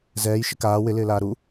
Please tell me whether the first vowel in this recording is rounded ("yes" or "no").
no